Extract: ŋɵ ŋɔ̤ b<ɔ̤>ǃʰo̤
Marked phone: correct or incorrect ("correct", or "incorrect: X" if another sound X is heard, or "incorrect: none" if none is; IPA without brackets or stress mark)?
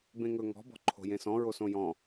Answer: correct